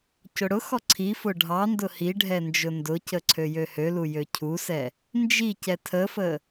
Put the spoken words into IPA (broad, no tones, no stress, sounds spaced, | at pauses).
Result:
c ʊ ɽ ʊ x ɔ ǀʰ i f ʊ ɖʱ ɑ n d ʊ h i ɖʱ ɛ n d͡ʒ ʊ n d ʊ c ə ǀʰ ø j ø h ø l u j ø cʰ u s ɛ | n d͡ʒ i c ɛ tʰ ə f ə